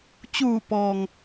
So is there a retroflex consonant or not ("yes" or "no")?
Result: no